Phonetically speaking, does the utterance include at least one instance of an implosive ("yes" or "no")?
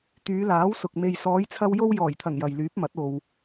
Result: no